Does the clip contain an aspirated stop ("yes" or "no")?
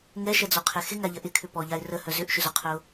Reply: yes